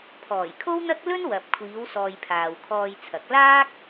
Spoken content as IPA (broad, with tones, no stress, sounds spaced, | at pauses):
pʰ ɔː˨˩ j kʰ o˥ w n̪ ɐ˥ k̚ l ɵ˥ n w ɐ˨ p̚ kʷʰ iː˨˧ w s ɔː˨ j pʰ aː˨ w kʰ ɔː˧ j t͡sʰ ɐ˨˥ k̚ l aː˥ k̚